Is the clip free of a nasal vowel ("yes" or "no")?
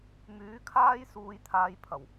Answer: yes